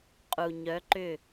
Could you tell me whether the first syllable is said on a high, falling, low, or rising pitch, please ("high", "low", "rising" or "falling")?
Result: low